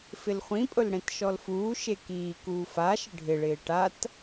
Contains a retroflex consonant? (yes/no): yes